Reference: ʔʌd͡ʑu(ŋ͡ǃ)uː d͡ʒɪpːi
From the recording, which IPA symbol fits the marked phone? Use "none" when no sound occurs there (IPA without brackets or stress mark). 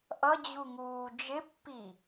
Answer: ŋ